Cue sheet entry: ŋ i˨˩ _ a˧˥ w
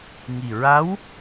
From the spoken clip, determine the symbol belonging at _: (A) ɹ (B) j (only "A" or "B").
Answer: A